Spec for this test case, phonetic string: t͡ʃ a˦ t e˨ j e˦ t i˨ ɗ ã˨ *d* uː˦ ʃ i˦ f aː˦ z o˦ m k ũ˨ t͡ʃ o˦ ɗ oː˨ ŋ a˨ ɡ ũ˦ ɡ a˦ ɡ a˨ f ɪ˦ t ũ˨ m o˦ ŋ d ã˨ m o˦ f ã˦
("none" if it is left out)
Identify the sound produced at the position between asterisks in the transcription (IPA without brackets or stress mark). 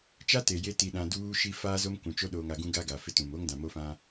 d